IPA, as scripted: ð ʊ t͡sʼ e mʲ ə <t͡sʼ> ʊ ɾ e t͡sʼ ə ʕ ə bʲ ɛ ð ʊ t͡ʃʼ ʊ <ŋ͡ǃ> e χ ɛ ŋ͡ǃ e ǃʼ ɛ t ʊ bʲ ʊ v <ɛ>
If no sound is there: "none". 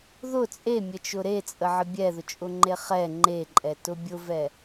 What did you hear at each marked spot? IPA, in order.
t͡ʃ, ŋ͡ǃ, ɛ

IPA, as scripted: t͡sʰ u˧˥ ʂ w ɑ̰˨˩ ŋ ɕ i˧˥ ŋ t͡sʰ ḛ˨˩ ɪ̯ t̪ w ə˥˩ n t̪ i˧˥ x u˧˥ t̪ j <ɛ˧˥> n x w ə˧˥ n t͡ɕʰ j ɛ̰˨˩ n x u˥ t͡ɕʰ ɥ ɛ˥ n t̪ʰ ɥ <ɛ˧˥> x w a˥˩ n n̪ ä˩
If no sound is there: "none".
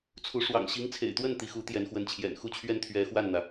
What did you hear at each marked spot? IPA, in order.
ɛ˧˥, ɛ˧˥

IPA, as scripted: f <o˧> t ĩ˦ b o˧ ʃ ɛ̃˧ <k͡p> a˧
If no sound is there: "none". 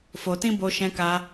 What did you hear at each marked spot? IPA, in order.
o˧, k

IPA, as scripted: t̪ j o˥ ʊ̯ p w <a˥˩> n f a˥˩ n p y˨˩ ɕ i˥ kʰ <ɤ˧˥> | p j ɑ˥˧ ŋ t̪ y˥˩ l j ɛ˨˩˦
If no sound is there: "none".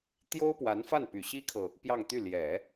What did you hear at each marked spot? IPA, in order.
a˧˥, ɤ˨

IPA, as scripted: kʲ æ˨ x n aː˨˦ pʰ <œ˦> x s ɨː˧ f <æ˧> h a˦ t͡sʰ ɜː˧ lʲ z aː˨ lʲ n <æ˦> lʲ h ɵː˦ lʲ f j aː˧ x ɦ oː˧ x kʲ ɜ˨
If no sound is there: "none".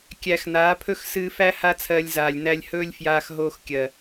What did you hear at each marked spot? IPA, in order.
ɵ˦, æ˦, æ˧

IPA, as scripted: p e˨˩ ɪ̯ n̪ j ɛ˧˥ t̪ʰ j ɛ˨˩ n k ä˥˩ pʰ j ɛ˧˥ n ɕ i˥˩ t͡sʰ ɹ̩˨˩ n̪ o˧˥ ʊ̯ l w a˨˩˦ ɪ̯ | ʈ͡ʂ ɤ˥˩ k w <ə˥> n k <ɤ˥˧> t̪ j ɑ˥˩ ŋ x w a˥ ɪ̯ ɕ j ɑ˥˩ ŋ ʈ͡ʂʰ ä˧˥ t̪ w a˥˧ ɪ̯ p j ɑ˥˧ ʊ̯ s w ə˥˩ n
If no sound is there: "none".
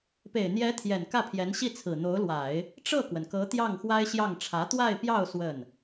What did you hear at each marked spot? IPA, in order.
ə˩, ɤ˧˥

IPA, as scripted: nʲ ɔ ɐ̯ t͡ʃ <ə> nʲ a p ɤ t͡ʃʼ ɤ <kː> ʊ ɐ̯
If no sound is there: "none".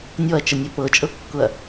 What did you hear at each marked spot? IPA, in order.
ə, kː

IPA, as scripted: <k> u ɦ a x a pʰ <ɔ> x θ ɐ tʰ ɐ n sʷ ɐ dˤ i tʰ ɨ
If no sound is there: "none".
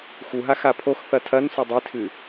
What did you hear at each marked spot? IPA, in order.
x, o

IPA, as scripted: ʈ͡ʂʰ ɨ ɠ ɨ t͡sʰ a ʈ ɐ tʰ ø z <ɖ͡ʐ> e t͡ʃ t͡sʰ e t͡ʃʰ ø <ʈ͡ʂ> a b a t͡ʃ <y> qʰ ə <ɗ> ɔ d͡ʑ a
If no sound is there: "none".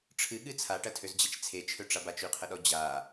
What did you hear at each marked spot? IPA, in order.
d͡ʑ, ʈ͡ʂ, y, ɗ

